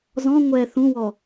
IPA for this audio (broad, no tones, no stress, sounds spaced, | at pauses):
z ɔ̃ ŋʷ ɛ θ ũ w ɔ